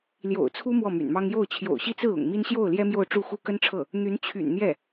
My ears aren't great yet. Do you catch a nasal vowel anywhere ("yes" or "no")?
no